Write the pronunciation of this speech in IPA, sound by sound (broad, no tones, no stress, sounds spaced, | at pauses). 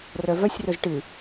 r œ v œ sʲ r ɵ z ʈ ɨ